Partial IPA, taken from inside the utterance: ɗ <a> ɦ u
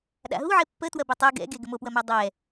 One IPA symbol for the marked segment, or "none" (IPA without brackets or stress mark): a̰